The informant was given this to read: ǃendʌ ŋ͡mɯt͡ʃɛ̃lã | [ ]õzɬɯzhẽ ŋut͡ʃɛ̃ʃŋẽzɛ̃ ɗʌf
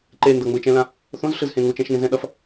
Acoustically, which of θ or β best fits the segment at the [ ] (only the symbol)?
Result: θ